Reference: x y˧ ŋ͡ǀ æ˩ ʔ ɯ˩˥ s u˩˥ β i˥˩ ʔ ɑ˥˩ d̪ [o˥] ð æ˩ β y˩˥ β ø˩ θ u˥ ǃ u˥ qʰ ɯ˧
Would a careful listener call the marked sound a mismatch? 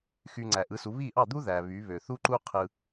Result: yes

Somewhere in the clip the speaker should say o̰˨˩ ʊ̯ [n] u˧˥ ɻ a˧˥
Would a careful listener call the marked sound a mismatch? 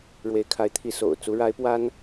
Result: yes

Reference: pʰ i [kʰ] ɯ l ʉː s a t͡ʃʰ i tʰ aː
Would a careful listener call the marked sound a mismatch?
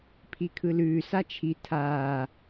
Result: no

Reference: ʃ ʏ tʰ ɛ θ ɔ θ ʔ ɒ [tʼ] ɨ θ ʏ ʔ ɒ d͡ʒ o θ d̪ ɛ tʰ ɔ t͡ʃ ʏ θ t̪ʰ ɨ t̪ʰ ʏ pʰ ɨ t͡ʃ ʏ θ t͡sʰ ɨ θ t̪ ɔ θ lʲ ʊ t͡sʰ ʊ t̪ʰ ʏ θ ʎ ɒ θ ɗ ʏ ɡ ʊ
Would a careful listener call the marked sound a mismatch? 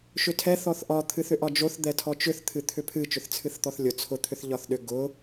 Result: yes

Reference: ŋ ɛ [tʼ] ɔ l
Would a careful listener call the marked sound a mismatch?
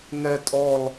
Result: no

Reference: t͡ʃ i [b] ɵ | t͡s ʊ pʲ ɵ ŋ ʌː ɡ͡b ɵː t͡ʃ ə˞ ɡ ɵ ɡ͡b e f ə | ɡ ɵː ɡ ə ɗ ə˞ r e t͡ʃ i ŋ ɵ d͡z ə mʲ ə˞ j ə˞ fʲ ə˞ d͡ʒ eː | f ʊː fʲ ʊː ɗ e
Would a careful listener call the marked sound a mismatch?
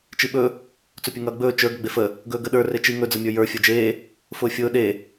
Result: yes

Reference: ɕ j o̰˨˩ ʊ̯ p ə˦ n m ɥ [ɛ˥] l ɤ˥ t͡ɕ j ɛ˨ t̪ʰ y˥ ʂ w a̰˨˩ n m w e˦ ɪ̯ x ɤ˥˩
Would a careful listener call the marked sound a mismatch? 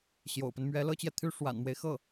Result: yes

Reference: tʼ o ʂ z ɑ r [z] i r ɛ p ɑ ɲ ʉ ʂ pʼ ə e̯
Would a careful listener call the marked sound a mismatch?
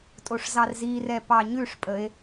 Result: no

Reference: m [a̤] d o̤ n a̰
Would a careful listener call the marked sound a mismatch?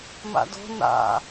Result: yes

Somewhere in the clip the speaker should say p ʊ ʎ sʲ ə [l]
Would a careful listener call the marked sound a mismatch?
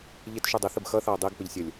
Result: yes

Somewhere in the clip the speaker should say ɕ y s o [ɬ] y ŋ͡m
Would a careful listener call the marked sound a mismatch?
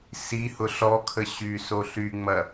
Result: no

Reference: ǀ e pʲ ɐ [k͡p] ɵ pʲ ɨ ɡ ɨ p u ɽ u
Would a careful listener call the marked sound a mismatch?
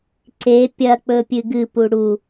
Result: no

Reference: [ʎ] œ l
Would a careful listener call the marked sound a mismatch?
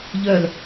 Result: no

